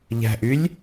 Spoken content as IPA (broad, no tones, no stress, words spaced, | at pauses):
ʎæ̤ʔylʲ